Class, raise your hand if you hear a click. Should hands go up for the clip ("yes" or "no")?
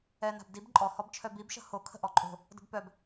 yes